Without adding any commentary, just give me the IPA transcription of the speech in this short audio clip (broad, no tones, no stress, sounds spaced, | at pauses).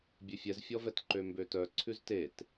bʲ ʉ fʲ ɛ z fʲ ɔ v ɛ t ǃ ø m b ø t œ ǀʰ ʉ z t e t